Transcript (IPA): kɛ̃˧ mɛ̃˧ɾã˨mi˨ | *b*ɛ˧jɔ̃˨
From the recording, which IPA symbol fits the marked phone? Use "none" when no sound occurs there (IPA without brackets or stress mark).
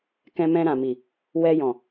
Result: w